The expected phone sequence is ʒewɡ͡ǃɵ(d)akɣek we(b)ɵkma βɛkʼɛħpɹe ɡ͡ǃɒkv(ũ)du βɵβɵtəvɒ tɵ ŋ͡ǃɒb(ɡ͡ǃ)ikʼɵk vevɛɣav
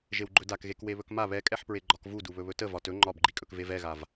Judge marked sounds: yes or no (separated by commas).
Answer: yes, no, no, yes